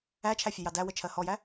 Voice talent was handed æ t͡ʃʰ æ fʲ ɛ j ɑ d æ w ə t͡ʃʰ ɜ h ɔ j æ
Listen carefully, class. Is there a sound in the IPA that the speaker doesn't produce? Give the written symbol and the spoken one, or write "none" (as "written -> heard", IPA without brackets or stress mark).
none